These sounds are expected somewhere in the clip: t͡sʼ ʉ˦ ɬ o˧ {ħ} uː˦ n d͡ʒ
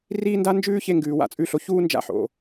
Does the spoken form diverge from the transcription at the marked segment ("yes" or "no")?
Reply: yes